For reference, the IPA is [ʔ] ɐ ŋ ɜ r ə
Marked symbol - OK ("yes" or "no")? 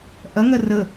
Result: yes